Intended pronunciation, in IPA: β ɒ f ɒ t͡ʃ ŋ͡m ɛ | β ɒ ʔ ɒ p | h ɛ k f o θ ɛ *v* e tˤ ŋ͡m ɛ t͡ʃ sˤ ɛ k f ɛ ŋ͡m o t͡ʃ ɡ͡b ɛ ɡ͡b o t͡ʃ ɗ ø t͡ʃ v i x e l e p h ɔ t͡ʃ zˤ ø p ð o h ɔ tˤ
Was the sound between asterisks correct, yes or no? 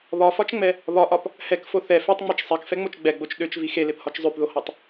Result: no